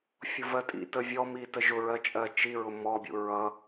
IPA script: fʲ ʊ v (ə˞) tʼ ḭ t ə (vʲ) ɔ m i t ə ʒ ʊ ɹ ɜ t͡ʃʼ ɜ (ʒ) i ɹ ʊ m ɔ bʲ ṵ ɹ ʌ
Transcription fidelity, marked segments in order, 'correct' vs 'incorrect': incorrect, correct, incorrect

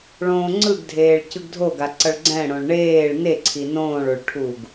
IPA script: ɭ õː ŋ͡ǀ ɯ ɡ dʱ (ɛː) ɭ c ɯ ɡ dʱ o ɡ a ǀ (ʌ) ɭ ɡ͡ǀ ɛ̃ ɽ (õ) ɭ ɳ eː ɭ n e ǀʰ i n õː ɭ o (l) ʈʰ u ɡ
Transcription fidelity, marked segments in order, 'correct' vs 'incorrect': incorrect, correct, correct, incorrect

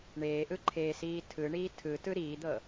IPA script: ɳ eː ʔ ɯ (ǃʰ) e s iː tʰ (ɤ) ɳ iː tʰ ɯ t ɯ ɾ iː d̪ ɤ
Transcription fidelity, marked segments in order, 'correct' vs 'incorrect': correct, incorrect

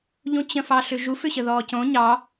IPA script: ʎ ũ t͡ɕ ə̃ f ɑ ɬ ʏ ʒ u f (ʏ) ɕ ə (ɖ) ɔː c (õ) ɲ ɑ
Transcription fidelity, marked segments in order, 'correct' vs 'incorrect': correct, incorrect, correct

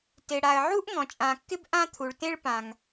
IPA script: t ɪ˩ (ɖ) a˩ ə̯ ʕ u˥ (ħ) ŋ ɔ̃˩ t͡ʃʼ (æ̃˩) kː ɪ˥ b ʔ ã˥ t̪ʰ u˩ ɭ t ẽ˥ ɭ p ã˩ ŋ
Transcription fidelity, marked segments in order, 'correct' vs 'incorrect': incorrect, incorrect, incorrect

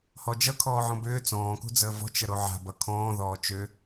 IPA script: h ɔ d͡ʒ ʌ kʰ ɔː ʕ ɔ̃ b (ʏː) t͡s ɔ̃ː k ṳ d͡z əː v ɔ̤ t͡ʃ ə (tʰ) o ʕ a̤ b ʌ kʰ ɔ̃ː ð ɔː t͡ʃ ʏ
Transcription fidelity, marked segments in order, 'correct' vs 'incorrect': correct, incorrect

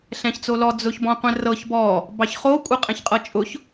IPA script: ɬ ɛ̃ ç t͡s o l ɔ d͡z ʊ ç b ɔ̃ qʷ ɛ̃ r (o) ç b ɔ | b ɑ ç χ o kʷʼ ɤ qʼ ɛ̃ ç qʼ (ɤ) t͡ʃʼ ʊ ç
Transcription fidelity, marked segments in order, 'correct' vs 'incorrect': incorrect, correct

